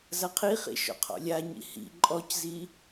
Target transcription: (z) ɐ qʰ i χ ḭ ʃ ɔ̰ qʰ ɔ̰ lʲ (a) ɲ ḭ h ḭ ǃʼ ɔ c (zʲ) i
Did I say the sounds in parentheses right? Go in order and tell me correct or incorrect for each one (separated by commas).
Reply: correct, correct, incorrect